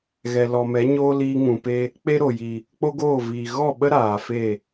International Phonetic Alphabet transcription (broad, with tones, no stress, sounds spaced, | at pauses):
ɣ ɛ˨ l ɔ˨ m ɛ˨˦ ɲ oː˦ l iː˧ ŋ ũ˨ p e˧ | k͡p e˦ ɾ o˨ j i˨ | k͡p o˦ ɡ oː˦˨ v iː˨ ɣ ɔ˦˨ ɓ ə˦ ɾ aː˨ f e˦˨